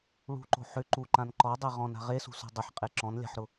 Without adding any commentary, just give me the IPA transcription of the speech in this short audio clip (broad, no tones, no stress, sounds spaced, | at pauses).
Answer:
ɭ ṳ ǃ o̤ ħ ʏ ǃ u ǃ ã n ǃ ɔ dˤ e ʁ ɔ̃ n a̤ ʁ e s ṳ s o̤ dˤ ɪ ħ qʼ e ǁ ɔ̃ n lʲ a̤ ħ ɾ ʊ